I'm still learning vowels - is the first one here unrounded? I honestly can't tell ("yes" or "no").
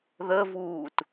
yes